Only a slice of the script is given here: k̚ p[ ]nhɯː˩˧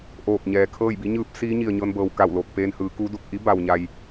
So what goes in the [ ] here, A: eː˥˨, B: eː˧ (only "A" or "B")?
B